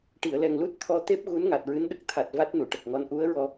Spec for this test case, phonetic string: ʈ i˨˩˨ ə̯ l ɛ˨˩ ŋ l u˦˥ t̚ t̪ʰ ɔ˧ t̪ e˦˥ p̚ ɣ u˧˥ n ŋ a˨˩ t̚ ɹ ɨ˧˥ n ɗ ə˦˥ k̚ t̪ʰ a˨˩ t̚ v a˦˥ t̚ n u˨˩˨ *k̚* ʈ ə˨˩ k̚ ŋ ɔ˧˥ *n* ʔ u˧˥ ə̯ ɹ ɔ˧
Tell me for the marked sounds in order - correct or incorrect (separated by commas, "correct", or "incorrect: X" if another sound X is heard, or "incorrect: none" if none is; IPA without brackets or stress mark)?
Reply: incorrect: none, correct